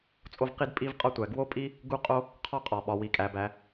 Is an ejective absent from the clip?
no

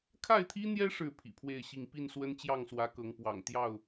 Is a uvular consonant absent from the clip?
yes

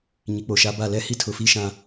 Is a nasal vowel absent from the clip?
no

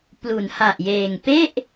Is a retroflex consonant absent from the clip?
yes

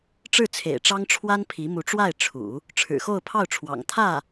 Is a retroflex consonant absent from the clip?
no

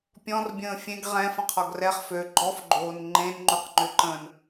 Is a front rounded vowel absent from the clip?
no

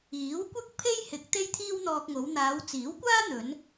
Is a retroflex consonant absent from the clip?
yes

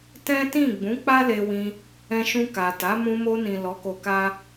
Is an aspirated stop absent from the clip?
yes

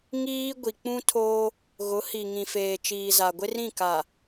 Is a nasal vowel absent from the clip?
no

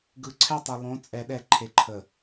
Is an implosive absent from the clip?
no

